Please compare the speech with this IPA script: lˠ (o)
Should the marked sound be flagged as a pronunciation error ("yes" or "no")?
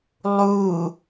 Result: yes